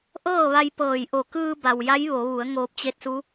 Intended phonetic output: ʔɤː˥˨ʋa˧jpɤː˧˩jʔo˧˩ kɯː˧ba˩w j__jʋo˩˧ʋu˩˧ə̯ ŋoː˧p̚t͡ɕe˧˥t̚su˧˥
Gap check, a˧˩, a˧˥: a˧˥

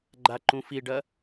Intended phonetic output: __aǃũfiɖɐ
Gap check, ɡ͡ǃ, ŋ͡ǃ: ɡ͡ǃ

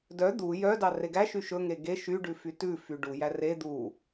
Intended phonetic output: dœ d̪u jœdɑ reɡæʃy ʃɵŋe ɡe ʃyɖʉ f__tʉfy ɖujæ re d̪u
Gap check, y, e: y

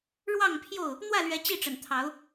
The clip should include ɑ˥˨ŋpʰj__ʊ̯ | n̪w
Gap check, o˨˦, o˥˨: o˥˨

